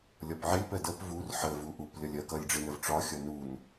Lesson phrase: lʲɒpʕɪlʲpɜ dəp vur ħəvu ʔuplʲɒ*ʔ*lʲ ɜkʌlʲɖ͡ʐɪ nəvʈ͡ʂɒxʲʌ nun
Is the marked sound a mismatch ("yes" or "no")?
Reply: yes